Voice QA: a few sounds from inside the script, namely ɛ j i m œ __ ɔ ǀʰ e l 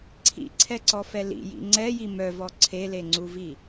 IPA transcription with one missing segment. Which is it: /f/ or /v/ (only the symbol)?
v